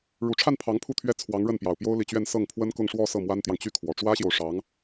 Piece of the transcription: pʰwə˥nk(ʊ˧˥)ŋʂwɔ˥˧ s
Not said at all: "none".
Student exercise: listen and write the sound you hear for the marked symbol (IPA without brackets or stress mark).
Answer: ʊ˥˧